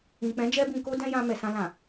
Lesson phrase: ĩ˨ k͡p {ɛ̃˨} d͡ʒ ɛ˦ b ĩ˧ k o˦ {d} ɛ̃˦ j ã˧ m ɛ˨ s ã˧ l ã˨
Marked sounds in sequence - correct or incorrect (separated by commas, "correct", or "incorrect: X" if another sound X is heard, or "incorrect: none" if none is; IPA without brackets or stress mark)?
incorrect: ɛ̃˨˦, correct